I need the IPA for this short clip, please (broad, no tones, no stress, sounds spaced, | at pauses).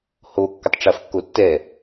h o kː ə tˤ ʈ͡ʂ ɐ f kː o tː ɛ